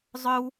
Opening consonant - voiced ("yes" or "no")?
yes